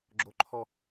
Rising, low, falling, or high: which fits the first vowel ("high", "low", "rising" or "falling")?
high